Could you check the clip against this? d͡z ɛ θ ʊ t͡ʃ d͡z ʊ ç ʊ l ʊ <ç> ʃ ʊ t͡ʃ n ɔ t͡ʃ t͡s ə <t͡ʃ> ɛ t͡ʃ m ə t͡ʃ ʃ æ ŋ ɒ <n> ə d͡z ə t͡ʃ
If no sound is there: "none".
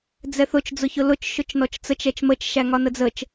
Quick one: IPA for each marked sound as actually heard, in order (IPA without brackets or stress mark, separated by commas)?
t͡ʃ, t͡ʃ, n